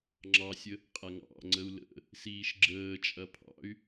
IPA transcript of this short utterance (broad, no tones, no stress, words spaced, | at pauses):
ŋ͡ǁɑsʲə | qʼaŋɑ̰ŋ͡ǀəu̯ lə̰ | siːʃɡ͡ǁəːt͡ʃʼɐ pʰɑ̰y̯